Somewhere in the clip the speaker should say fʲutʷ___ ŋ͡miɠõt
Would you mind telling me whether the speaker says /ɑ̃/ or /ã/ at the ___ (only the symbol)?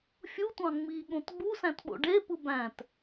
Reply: ɑ̃